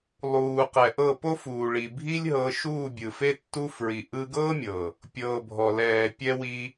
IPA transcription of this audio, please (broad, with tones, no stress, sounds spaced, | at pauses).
lˠ uː˨ q ɛ˨ ʔ ɤ˦˨ p o˦ f uː˨ ɭ i˨ bʱ i˦ lʲ ɦ ɤ˧ ʃ uː˦˨ bʲ ɯ˨ f e˦ tː u˦ f ɹ i˧ ʔ ɯ˧ ɡ ɤː˦ mʲ ɤ˨ | pʲ ɤː˨ bʱ ɔ˨ l ɛː˨ pʲ ɛ˧ w i˧